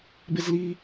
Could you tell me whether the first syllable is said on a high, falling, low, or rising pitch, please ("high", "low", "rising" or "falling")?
high